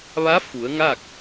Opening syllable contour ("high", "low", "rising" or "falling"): rising